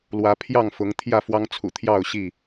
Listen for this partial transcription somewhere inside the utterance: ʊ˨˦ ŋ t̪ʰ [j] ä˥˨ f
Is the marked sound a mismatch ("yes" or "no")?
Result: no